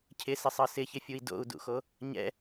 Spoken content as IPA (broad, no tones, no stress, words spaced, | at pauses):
cʰɪsɪsˤɤ sɪçɪfʲui̯ do̰u̯dṵxo | ɲɛ̰